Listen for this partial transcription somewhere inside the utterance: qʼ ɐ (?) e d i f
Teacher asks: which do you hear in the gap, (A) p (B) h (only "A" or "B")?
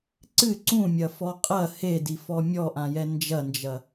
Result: B